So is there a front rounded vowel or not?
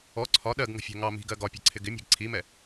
no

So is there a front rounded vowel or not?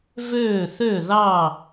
yes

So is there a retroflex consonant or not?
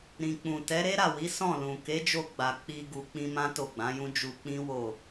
no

